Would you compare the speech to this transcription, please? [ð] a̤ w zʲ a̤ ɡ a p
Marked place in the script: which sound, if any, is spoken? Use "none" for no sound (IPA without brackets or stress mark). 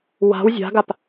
w